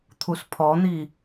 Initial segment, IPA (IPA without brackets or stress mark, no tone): t̪ʰ